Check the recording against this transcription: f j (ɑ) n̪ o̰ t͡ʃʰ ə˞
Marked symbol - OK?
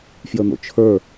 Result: no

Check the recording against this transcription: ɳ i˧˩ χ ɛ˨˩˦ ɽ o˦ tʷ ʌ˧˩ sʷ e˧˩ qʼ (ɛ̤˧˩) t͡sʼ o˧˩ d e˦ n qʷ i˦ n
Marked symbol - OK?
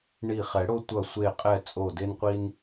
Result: no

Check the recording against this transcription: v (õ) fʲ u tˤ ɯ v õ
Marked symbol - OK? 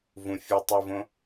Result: no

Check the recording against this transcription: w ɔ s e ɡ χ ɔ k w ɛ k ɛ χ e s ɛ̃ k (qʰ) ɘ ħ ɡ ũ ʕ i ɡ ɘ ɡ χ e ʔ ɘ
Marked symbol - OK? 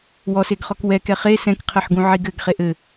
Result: yes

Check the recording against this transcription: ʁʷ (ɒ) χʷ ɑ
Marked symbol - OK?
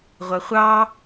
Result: no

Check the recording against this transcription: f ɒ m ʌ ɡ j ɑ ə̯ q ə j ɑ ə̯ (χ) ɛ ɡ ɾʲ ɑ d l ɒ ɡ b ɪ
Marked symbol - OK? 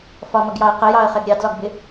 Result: yes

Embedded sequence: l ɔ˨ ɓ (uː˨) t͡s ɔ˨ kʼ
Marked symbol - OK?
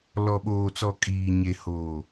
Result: no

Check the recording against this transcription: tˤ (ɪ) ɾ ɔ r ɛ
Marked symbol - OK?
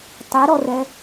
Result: yes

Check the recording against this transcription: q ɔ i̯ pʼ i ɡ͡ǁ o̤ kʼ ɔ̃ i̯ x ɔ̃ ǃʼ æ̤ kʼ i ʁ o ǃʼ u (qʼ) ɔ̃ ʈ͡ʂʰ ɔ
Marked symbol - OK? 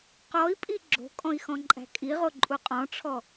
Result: yes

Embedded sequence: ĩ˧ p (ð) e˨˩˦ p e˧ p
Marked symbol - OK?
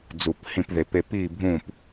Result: yes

